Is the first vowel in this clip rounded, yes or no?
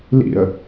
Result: no